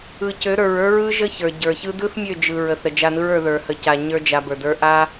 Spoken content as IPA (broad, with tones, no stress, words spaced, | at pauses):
ɯ˨cø˨˦ɾə˞˨ɹə˞˦ ɹɯ˦ʒə˦çə˞˨ ɟə˞˨çɯ˦ dɯ˦θmʲø˦˨d͡ʒɯ˨ ɹə˨θɾə˨ d͡ʒa˧nɯ˦ɹə˞˧ ðə˞˨hə˨ca˨ ɲə˞˦d͡ʒa˧bə˞˨də˞˦ ʔa˦